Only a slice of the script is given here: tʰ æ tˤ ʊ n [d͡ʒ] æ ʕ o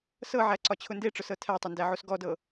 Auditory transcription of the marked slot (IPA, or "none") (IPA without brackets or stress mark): d